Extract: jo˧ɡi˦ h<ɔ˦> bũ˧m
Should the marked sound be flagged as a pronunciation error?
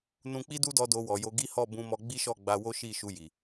yes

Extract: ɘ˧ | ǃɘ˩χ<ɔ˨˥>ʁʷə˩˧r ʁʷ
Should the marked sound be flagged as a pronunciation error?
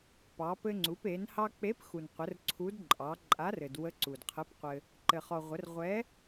yes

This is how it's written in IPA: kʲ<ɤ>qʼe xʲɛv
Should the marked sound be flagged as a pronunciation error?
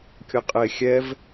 no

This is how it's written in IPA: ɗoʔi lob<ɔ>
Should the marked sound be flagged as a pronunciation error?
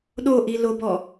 no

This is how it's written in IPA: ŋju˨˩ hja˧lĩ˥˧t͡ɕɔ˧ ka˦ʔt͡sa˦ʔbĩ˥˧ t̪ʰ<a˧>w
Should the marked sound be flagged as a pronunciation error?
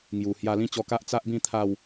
yes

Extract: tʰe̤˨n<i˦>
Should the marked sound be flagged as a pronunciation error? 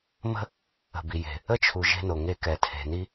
no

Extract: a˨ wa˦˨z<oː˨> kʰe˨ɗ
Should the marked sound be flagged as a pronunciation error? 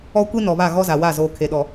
no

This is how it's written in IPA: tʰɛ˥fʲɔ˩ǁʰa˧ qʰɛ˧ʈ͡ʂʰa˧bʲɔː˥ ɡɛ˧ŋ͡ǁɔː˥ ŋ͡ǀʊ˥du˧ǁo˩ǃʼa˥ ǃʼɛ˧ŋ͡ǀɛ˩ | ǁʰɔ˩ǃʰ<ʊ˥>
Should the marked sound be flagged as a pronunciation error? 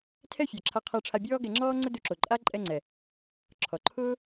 yes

